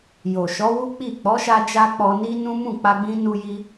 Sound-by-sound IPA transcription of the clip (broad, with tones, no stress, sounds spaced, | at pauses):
j o˨ ʃ ɔ˨˦ w u˦ k͡p i˦˨ k͡p ɔ˨˦ ʃ a˧ d͡ʒ a˧ k͡p ɔ˧ n i˦ n ũ˦ m ũ˦˨ k͡p a˧ ɡ͡b ĩ˧ n u˧ j i˧